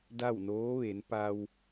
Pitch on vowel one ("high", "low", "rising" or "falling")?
falling